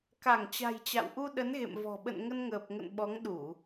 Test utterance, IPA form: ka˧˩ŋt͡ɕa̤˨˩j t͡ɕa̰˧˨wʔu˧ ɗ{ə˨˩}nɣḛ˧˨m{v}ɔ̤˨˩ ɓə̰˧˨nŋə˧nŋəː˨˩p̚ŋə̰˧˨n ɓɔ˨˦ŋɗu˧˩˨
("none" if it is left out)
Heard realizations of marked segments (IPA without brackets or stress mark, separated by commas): ə˨˦, v